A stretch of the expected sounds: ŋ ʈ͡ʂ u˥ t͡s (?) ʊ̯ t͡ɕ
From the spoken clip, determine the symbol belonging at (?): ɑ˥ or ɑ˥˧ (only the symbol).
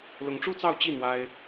ɑ˥˧